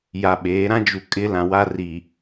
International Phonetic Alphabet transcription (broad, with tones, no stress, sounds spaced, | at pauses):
j a˨ ɓ eː˨˦ ɾ ã˦ d͡ʒ u˨ kʼ ɪ˦ l ã˨ w a˦ r iː˨